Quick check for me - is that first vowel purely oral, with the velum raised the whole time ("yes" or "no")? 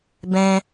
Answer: no